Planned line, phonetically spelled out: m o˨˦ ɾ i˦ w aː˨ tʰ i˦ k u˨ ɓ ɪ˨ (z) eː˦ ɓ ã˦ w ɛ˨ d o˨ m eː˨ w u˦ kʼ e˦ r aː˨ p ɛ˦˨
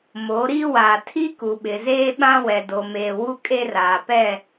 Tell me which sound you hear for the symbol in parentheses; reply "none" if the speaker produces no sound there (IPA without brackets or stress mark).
z